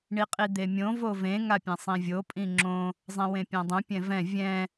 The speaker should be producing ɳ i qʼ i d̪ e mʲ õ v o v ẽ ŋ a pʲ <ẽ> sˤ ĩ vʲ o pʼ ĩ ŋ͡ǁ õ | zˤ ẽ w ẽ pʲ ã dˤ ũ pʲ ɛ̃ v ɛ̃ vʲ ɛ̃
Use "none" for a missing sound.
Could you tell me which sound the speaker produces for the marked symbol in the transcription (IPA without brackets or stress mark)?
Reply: ɛ̃